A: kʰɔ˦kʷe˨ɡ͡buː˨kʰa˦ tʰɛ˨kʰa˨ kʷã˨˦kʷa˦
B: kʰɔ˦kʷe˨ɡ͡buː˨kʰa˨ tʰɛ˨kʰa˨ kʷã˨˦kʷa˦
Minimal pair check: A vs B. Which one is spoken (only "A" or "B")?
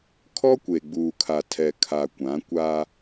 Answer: B